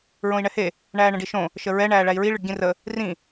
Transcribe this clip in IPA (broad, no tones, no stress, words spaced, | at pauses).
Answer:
ɹõi̯ɳɛhe | ɳæːɳə̃ɖiʃõ | ʃəɹɛ ɳæːɭæi̯ɹi ɭɨɖɟĩrə | rĩ